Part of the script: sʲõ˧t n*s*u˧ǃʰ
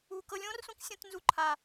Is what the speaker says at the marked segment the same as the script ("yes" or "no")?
no